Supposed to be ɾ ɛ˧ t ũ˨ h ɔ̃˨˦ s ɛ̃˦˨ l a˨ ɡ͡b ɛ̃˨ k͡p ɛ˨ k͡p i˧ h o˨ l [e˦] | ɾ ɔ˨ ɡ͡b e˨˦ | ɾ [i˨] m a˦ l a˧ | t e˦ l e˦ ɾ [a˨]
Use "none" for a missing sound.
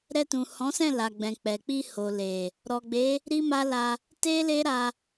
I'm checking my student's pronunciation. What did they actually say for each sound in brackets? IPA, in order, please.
e˨, i˦, a˧

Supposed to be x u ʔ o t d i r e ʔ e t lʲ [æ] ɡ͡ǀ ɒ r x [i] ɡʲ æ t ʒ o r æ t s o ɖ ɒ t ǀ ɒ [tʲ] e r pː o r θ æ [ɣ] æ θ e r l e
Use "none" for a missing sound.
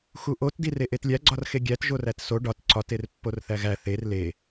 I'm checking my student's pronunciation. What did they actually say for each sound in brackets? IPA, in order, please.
æ, e, t, ɣ

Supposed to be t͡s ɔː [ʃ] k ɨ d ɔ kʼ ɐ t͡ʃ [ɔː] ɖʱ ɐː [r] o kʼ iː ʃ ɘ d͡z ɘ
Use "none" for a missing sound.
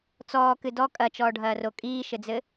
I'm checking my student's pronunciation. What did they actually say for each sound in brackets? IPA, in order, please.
none, ɔː, r

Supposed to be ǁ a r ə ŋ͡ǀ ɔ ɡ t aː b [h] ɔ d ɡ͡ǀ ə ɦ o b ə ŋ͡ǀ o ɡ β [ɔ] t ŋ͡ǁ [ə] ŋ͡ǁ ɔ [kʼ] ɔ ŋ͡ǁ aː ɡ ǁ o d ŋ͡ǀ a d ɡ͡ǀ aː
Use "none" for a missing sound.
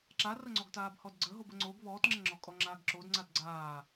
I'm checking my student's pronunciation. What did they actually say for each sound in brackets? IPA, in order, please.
h, ɔː, ə, kʼ

